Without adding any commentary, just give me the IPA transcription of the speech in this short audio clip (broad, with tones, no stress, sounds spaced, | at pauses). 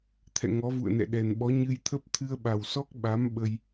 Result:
t̪ʰ ɛ̰˧˨ ŋ ɔ˨˦ v ṵ˧˨ ə̯ n ɛ̰˧˨ ɗ ɛ˨˩ n ɓ ɔ˨˦ ɲ ɨ˧ j t̪ʰ ə˦˥ p̚ t̪ʰ ɨ˧ ə̯ ɓ a˨˩ w s ɔ˦˥ k̚ ɓ a˨˦ m ɓ ə˧ j